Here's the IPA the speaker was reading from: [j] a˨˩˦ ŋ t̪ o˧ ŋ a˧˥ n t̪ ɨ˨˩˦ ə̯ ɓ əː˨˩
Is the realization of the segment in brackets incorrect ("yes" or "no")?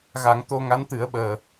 yes